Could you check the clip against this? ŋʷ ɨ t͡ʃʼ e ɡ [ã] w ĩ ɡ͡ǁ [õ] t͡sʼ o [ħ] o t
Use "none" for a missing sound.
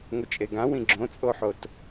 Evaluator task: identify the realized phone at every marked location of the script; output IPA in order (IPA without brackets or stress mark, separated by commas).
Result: ã, õ, ħ